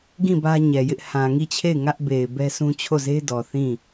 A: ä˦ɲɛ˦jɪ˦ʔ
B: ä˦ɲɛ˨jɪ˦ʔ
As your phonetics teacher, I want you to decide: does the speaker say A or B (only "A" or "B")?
B